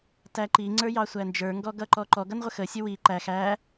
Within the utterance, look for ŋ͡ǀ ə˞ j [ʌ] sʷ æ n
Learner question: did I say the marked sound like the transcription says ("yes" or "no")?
no